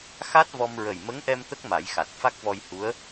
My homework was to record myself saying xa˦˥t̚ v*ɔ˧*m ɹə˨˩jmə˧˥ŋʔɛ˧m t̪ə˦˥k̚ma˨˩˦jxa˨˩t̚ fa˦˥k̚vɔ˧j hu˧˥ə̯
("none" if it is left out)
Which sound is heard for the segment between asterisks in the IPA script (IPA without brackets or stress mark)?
ɔ˧